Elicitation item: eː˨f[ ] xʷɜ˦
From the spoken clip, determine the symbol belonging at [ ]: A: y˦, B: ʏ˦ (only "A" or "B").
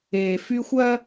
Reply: A